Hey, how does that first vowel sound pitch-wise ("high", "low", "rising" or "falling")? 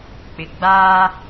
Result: low